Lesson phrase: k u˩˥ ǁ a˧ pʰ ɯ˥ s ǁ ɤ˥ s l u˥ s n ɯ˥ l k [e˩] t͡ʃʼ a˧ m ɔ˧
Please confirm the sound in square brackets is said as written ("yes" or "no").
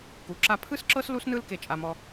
no